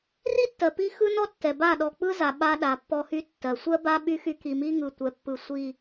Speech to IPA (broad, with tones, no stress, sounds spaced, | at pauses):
r i˦ tː ɜ˨ p i˦ x ɯ˦ n ɔ˦ tː ɛ˨ b a˦˨ ɗ ɔ˨ k͡p ɯ˦ z a˨ ɓ a˦ ɗ a˨ pː ɔ˦ h y˦ tː ɜ˨ sʷ ɜ˦ b a˦ ɓ y˦ x y˦ k i˨ m i˦ ŋ ɯ˨ tʷ ɛ˨ pː ɯ˨ sʷ i˨